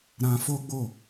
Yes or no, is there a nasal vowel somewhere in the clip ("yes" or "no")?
yes